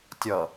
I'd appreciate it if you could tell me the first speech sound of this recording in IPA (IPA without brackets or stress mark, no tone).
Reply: tʲ